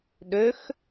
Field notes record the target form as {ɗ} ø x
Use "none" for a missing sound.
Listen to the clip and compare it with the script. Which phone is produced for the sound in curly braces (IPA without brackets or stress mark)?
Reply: ɗ